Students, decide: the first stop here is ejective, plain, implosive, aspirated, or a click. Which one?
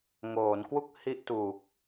plain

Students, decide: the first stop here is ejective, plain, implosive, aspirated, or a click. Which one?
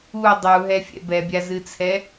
plain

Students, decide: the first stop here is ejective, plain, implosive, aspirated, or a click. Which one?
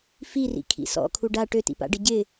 aspirated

